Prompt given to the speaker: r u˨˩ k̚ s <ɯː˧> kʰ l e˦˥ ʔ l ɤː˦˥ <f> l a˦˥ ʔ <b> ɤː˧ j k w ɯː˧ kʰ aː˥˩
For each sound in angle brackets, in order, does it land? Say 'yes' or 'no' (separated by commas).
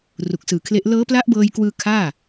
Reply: no, no, yes